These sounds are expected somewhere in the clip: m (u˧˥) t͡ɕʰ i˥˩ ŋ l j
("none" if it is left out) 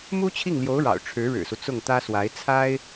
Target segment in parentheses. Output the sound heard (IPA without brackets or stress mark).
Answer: u˥